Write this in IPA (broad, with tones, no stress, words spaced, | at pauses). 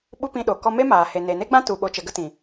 ɓu˦pĩ˧ɗo˨ kɔ˧me˦maː˨ he˨ne˨ne˦ɡ͡bã˦ tu˨ ɓo˧t͡ʃə˧ɡə˦ tĩ˨